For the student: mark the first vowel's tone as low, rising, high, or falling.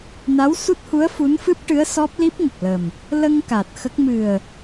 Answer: rising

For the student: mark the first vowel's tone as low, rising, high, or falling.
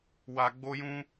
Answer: low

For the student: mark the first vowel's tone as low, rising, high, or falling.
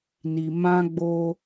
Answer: low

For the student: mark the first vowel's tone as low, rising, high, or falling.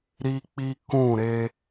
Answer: high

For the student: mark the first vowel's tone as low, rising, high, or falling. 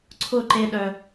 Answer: falling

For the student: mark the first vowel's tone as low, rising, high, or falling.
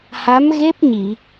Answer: rising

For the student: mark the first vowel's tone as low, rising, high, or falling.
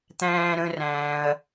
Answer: high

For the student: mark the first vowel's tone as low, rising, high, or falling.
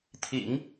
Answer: low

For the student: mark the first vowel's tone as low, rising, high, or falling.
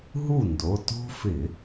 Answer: falling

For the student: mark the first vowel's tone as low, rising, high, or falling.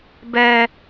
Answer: high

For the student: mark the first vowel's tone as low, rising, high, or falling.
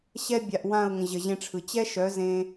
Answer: high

